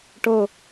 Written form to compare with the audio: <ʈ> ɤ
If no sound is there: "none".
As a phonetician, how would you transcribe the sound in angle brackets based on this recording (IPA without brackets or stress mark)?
ʈ